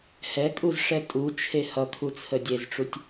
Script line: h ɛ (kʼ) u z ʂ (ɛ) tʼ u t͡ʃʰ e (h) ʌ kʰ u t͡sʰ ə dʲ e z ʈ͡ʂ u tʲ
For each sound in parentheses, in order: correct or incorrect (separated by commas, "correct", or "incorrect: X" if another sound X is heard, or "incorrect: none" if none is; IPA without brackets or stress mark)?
correct, correct, correct